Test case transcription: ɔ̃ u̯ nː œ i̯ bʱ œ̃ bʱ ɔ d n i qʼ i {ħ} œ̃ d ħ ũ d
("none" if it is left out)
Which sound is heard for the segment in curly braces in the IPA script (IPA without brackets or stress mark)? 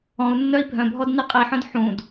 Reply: ħ